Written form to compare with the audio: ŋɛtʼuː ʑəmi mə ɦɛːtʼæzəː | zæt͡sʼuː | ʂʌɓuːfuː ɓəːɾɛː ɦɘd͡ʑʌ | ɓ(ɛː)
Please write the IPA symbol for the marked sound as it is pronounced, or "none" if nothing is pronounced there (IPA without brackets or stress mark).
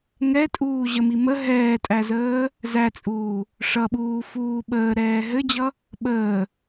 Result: əː